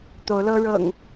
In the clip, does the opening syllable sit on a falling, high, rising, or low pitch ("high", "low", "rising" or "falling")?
rising